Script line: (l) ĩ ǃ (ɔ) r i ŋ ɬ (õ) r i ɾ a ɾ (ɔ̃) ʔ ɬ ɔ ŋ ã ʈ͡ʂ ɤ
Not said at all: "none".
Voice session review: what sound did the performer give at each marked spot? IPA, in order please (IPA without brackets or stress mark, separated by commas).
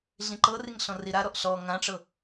ɮ, ɤ, ɔ̃, ɔ